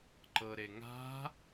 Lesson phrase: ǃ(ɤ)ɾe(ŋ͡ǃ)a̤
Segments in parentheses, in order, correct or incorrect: correct, incorrect: ŋ

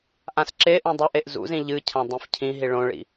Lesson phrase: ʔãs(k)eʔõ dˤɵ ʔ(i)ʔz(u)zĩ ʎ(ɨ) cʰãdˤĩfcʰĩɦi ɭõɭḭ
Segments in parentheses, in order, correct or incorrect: incorrect: ǁ, incorrect: e, incorrect: ṵ, correct

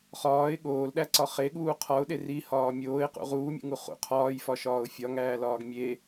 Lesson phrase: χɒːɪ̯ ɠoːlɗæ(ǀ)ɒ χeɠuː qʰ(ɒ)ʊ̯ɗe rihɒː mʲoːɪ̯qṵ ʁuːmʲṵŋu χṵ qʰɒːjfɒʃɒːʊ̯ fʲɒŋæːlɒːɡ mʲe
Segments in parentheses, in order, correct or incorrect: correct, correct

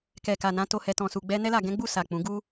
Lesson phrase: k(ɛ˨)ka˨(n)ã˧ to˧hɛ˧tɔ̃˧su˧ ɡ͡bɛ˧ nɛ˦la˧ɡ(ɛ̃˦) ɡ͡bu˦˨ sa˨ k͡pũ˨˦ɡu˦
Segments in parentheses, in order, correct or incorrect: correct, correct, correct

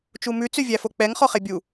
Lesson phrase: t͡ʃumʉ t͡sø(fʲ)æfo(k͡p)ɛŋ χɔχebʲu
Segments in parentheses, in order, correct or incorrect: incorrect: vʲ, correct

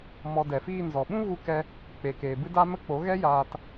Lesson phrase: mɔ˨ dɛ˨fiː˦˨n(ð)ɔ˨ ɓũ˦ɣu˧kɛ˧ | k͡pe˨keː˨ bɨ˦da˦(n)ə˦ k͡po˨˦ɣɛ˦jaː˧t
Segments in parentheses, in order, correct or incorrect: incorrect: z, incorrect: m

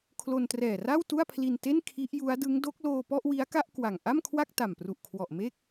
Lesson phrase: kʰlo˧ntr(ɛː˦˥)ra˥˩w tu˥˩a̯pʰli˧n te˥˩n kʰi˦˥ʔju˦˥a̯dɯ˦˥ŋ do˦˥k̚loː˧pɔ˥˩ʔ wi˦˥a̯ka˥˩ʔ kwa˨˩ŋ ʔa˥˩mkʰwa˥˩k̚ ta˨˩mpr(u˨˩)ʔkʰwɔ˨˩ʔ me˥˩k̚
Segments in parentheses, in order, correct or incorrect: incorrect: ɛː˨˩, correct

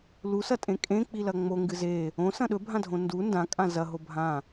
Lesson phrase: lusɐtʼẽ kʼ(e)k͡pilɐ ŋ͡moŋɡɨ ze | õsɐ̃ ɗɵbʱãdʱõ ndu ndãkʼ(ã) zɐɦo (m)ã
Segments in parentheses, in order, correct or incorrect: incorrect: ẽ, correct, incorrect: bʱ

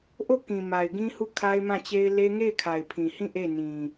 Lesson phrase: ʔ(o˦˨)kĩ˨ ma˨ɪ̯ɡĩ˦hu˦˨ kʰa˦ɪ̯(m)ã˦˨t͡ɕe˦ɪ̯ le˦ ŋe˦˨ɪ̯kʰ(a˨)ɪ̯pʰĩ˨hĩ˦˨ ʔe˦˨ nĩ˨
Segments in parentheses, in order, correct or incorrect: correct, correct, correct

